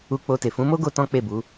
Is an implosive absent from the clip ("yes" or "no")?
yes